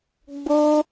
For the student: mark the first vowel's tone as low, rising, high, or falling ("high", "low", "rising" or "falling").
high